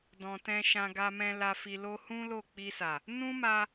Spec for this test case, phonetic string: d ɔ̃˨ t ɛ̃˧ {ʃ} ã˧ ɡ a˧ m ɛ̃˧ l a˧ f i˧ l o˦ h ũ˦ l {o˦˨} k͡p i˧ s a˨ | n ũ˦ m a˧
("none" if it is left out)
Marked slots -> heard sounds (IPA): ʃ, o˦˨

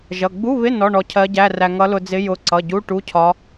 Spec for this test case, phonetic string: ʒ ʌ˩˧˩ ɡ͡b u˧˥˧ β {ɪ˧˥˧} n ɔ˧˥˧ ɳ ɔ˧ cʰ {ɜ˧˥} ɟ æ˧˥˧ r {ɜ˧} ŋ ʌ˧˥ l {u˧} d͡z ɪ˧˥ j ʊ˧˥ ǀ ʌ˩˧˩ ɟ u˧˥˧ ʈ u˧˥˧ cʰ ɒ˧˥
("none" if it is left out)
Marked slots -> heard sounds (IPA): ɪ˧˥˧, ɜ˧˥, æ˧, ʊ˧

